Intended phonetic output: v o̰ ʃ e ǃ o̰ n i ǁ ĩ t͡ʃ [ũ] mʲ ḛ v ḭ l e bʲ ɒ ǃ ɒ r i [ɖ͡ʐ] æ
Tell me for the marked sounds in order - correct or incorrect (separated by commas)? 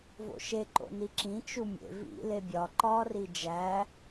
incorrect, incorrect